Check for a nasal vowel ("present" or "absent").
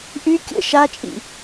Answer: absent